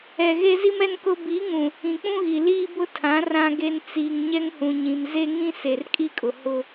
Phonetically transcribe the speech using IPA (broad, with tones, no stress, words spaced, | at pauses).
ɛ˨ɣe˦zi˦mɛ˦n kʊ˦ bi˨˦ŋũ˨ | ĩ˨k͡pũ˦ɣi˨ liː˦bʊ˦ tʰã˨˦ rã˦ɡe˦n t͡siː˨ŋ ɲɛ˦ŋhũ˨ɲĩ˨m ze˦ ŋĩ˦ se˨rkʼi˦kʼʊ˨ hʊ˦